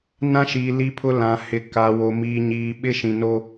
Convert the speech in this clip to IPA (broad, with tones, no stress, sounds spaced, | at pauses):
n ã˦ ʃ iː˨ l i˦ pʰ ʊ˦ l ã˨ h ɪ˨ k a˨ w o˨ m iː˨ ɲ iː˨ ɓ ɪ˦ ʃ ĩ˨ n o˦